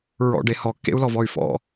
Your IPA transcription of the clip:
ɹ ɔ̰ ɖ e h ɔ kː ḛ u̯ l ɔ v ɔ y̯ f ɔ̰

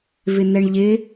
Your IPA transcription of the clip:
v ɪ n̪ ɛ ɳ ʎ ɪ

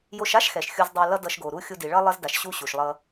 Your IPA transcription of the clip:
j o˧ ʃ a˥ ʃ x ɛ˩ ʃ xʲ u˧ z dˤ a˧ l ʌ˥ d ʌ˧ ʃ ɡ o˩ ɾ u˥ xʲ u˧ d i˩ ɭ ʌ˥ lˠ ʌ˥ z d a˩ ʃ ɕ u˥ ɕ u˩ ʃ lˠ ʌ˧

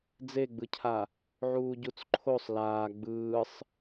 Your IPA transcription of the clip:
d͡z e ɡ͡b ɯ cʰ a | ʕ uː ɟ u t͡s ǃʰ o sˤ l aː ɡ͡b ɯː sˤ

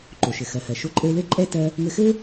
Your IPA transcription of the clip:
ǃ o˩ ʃ ɘ˩ x ɜ˩ h ɜ˩ ʃ o˧ ǃʼ ɘ˧ e̯ l ɘ˥ ǃʼ ɛ˥ t ɜ˧ | ŋ ɘ˧ x ɘ˥

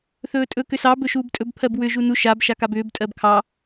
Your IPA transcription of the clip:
θ ɵː tʼ ɵ k ʏ s ɑ b ɵ ʃ uː b tʼ ɵ b pʰ ɜ b w ʏ ʒ u n u ʃ a b ʃ a k a b ʏː b tʼ ɜ b kʰ ɑ

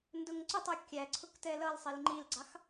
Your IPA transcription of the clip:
n d ʊ ŋ ǀ ʊ tˤ u kʲ æ ǀʰ ʊ k t ɛ l ʌ l sˤ i l ŋ͡ǃ i l ɡ͡ǀ ɑ x

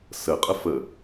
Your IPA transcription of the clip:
s ə qʼ ə f ə

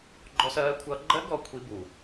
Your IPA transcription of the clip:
ɡ͡ǃ ɔ˦˥ s ɜː˦˥ kʷʰ ʌː˦˥ ɡ͡ǃ ɜ˦˥ ɡ ɔ˧ kʷʰ i˦˥ b u˨˩

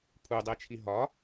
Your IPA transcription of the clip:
pʰ u dˤ e t͡ʃʰ i ɦ ɒ

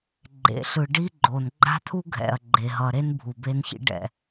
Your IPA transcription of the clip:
ɡ͡ǃ ḛ˨ ɬ ɯ˨ ɖ i˦ ɡ͡ǃ o˨ n ɡ͡ǃ a̤˦ t̪ʰ u˦ ɡʱ ɛ̰˨ ɐ̯ ɡ͡ǃ e˨ ɦ ʌ˨ ɾ e˦ n bʱ u˨ b e˦ n ç ḭ˦ ɖ ɛ̰˨

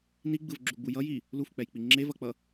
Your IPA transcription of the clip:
n i ɡ͡b ɯ v ɡ͡ǁ u ɡ͡b u j ʌ j i | l u f k͡p ɛ j k͡p i ŋ͡ǁ e v ʌ k͡p ʌ

